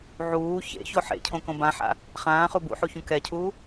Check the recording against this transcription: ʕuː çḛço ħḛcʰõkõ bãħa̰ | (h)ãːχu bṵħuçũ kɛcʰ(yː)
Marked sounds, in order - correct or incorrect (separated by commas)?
incorrect, incorrect